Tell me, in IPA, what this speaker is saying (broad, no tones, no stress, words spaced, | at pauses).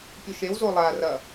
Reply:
pʲoʃew zolˠa rɐ